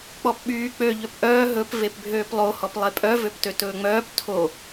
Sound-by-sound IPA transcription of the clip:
k͡p ɔ p ɓ yː k͡p ø ʎ ø p ʔ œː ɦ ɵ p v e p bʱ øː p lˠ o h ɔ p lˠ e pʼ œ v ø p t ø t ɵː ŋ͡m œː p tʰ o

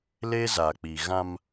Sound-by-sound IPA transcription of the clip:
l e˦ z a˨ k͡p i˨ ɣ ã˦ m

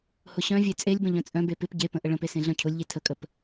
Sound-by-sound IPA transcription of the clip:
h ʊ ɕ œ̃ vʲ e t͡sʼ e lʲ b ə̃ ʎ œ̃ t͡sʼ œ̃ b e p ɪ p ɟ e p ə̃ ʔ ə ɭ ə̃ p e s ẽ ɮ œ̃ cʰ ʊ lʲ ʎ e tʰ ə kʼ ə p

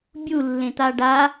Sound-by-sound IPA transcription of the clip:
bʲ u lː ẽ t̪ a ɖ a

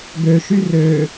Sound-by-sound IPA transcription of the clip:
ɡ ø ʃ y r ø

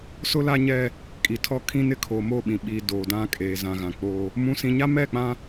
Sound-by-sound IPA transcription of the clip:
s ʊ˦ l a˦ ɲ ɛ˦ | kʼ i˨ tʰ ɔ˦ kʰ ĩ˦ n ɪ˦ kʰ o˨ m o˦˨ ɓ ĩ˨ ɓ iː˨ d oː˨ d ã˦ kʼ e˨ z ã˨ ɣ ã˨ k͡p oː˦ | m ũ˦ s ĩ˦ ɲ a˦ m ɛ˦˨ k͡p ã˦

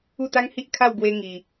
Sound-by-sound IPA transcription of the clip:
u˥˧ t̪ a˦ ŋ h i˦ ʔ kʰ a˥˧ w ɡ w e˧ ŋ i˧

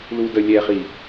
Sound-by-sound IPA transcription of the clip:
l u d ə lʲ ɛ χ i

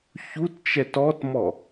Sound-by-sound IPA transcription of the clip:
ç u t t͡ʃ ɛ t ɔ t m ɔ

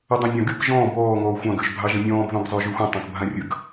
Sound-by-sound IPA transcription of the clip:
ə dˤ ã nʲ ɑ̃ ɡ y k ʒ ɔ̃ː b ɔː ŋ ɔː xʷ ɑ̃ ɡ ø ʒ bʱ ɑ ʒ ə̃ nʲ ɔ̃ː b ð ɔ̃ ɡ zˤ ø ʒ y xʷ ə̃ tˤ ɑ̃ k bʱ ã rʲ ə ɡ

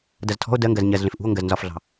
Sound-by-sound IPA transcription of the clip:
d ɐ z tʰ ɔ̤ o̯ d ɜ ŋ ɡ ɜ z ɲ ɜ z ɮ ẽ f ʔ ṳ o̯ ŋ ɡ ɜ z n z ɒ f ɮ ɑ̤

